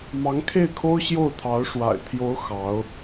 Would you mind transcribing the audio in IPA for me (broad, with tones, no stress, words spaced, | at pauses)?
mɑ˧˥ŋkʰe˥˩ɪ̯kʰo˥ʊ̯ ɕjo˥˩ʊ̯t̪ʰɑ˧˥ʊ̯ ʂwa̰˨˩ɪ̯ t̪ʰjo˧˥ʊ̯ xɑ˧˥ʊ̯